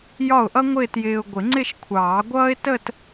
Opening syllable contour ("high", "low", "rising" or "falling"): falling